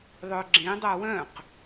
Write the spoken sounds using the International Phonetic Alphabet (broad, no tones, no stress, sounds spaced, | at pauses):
ðˤ œ ɡ͡ǁ ẽ dˤ a w œ̃ q